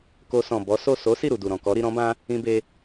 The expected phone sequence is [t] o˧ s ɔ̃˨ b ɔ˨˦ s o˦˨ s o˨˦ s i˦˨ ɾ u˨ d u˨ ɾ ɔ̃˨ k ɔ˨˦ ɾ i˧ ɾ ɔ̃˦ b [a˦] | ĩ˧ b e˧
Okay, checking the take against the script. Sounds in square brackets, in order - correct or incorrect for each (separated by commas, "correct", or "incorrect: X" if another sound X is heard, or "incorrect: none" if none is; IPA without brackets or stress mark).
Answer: incorrect: k, incorrect: ã˦